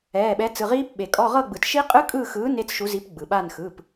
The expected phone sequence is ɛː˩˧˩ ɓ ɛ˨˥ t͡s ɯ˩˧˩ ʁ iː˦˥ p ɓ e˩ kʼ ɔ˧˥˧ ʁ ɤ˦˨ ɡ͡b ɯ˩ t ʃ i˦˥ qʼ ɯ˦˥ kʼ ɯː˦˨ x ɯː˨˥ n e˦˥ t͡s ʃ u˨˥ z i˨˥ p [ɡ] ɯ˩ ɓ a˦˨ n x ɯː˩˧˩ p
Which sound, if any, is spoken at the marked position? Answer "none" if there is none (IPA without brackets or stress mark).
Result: ɡ͡b